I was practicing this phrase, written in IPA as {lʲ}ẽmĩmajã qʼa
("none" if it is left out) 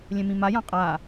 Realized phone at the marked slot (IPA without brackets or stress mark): lʲ